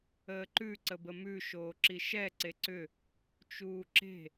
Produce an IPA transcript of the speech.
əː ǃ ʉ ǀ ə b ə m ʉ ʃ oː ǁ i ʃ ɛ ǀ e ǀ ʏ | t͡ʃ uː ǁ e̤

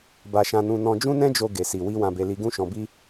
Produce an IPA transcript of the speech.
b a˧ ʃ ã˧ n ũ˧ n ɔ̃˧ d͡ʒ ũ˦ n ɛ̃˦ d͡ʒ o˧ ɡ e˨ s i˨ w i˧ w ã˧ b e˧ l i˧ ɡ ũ˦ ʃ ɔ̃˧ b i˦

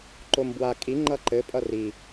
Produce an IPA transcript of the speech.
ǃ o m b w a kʼ i ŋ͡ǃ ʌ ǃ ɘ pʼ ʌ r i

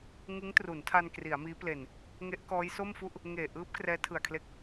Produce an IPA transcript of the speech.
ŋ ɯ˦˥ ŋ t r u˩˦ n tʰ a˧ n k r i˩˦ a̯ m iː˦˥ p l e˨˩ n | ŋ e˦˥ ʔ k ɔː˦˥ j s o˥˩ m f u˥˩ ʔ | ŋ eː˨˩ ʔ ɯː˦˥ p̚ k r ɛː˦˥ tʰ ɯ˨˩ a̯ kʰ l e˦˥ k̚

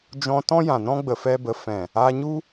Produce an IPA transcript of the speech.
d͡ʒ ɔ̃˧ t ɔ̃˦ j ã˨ n ɔ̃˦ ɡ͡b ə˧ f ɛ˦ b ə˧ f ɛ̃˨ | a˧ ɲ u˦

